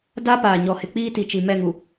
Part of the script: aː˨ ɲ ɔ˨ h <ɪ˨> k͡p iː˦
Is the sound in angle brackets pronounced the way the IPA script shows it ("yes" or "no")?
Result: yes